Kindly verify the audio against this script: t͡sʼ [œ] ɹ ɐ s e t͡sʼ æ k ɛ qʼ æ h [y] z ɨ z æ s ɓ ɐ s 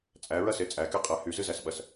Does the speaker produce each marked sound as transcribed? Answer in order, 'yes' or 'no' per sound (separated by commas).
no, yes